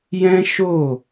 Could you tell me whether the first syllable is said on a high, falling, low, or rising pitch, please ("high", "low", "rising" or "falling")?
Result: high